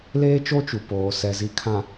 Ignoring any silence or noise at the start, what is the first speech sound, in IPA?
l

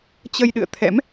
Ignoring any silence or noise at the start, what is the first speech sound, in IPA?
t͡ɕ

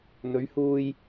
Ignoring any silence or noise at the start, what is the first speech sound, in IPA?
n̪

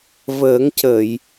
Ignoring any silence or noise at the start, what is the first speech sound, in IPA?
v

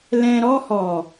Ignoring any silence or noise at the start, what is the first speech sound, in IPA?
l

